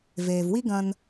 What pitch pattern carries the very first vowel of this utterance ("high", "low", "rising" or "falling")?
low